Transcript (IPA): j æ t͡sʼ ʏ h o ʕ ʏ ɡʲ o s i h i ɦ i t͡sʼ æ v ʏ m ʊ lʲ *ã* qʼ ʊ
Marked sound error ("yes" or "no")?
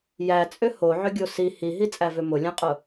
no